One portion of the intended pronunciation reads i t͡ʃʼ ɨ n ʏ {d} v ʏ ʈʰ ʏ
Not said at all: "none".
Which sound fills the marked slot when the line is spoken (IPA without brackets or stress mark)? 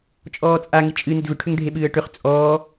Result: d